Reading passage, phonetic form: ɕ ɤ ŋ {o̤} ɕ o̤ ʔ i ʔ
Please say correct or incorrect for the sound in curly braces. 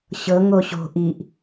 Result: incorrect